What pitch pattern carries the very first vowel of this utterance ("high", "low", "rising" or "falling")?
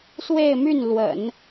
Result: falling